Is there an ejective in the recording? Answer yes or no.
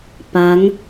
no